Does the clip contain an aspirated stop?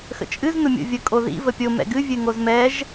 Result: no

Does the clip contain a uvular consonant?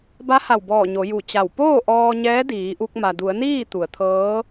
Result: no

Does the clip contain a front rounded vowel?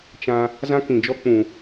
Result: no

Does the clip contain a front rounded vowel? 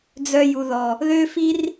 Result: yes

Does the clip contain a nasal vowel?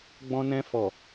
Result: yes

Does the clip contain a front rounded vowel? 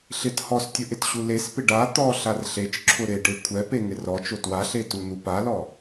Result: no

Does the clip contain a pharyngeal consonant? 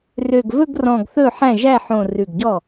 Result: yes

